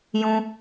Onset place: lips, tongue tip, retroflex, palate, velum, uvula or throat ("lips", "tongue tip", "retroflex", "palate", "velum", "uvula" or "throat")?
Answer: palate